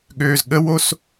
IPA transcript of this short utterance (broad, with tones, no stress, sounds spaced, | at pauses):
ɠ øː˨ z ɠ ə˦ w o˦ s